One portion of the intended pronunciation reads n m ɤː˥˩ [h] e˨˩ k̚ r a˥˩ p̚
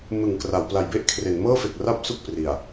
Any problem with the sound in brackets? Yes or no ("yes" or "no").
yes